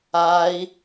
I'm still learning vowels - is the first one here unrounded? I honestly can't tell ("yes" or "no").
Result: yes